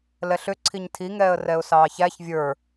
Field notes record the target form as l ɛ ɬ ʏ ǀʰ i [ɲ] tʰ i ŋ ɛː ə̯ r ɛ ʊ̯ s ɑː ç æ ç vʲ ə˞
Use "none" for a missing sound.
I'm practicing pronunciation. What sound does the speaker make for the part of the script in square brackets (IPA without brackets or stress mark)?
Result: ɲ